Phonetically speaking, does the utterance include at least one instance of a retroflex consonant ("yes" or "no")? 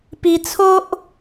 no